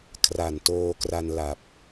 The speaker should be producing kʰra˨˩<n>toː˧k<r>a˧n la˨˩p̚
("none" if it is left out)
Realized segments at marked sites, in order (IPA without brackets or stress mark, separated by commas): n, r